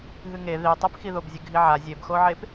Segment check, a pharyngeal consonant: present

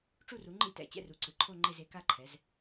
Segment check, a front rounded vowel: absent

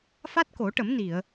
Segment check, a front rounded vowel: absent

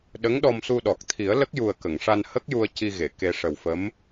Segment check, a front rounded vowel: absent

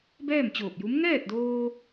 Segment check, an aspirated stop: absent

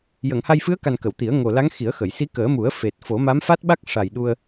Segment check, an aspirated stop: absent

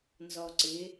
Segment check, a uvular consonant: absent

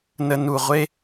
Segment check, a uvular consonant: present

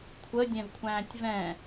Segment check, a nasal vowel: present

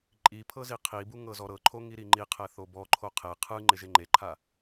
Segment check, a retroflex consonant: absent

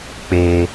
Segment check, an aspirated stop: absent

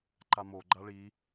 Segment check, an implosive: absent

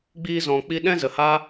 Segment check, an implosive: present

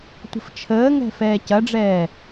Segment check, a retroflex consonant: present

